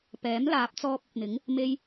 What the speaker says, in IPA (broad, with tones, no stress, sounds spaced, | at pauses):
p ɛː˨˥ m l aː˨˥ p̚ t͡s ɔː˧ p̚ ɐ˨ p̚ n̪ ɪ˨˥ ŋ | m e˧ j